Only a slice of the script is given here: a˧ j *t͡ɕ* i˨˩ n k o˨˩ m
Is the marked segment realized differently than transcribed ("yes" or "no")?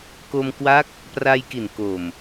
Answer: yes